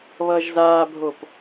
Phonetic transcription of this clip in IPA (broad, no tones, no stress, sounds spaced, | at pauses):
β ʌː ʒ z aː bʱ o p